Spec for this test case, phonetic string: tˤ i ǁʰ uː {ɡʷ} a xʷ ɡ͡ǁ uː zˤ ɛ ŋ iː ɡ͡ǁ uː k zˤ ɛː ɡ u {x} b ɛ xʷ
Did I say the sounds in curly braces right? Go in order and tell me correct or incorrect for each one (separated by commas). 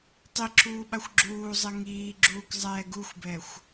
incorrect, incorrect